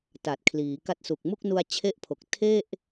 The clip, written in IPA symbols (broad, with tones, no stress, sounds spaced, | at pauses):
t a˨˩ t̚ kʰ l iː˩˦ k a˦˥ t̚ s u˨˩ k̚ m u˥˩ k̚ n u˧ a̯ t͡ɕʰ e˥˩ ʔ pʰ o˨˩ k̚ tʰ e˥˩ ʔ